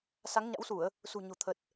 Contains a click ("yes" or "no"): no